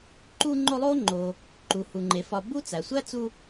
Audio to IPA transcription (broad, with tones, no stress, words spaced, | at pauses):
ǃu˦ŋ͡ǃo˦lˠo˥ŋ͡ǃo˨ | ǃu˩hu˩ŋ͡ǃe˩fɒ˨ bu˦t͡sæ˩sʷæ˥t͡su˦